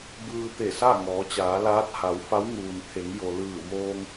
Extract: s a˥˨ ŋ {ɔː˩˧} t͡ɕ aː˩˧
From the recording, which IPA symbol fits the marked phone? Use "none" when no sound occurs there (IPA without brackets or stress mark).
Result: ɔː˩˧